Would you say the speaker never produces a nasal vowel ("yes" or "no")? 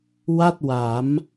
yes